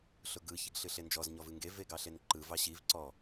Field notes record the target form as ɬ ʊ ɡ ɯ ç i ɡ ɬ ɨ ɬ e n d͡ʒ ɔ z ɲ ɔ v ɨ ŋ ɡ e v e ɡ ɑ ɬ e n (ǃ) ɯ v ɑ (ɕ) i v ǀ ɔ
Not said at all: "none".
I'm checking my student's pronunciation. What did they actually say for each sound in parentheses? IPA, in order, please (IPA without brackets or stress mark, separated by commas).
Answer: ǃ, ɕ